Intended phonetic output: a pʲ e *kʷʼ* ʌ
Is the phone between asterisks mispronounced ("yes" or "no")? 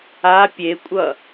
no